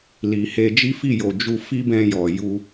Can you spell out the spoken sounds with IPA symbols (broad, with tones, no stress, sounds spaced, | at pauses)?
l i˨ h e˧ d͡ʒ i˦ f i˦˨ j o˨ d͡ʒ u˧ f i˦ b ɛ̃˧ j ɔ˨ j u˧